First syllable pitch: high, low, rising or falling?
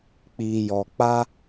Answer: low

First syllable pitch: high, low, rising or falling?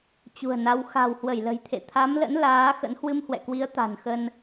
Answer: low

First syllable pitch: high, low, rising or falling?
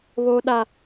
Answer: high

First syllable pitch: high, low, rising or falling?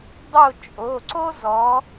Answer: falling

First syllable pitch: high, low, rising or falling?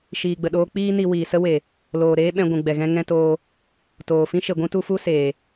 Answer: low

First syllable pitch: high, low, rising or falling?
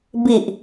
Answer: low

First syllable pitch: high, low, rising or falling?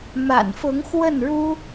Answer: low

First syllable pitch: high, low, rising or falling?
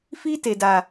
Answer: high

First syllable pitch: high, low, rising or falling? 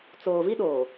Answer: low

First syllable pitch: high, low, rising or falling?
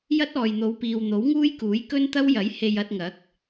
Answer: high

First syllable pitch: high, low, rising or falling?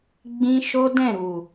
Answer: high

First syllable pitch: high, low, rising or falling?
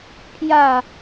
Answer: falling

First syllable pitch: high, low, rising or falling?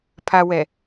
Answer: low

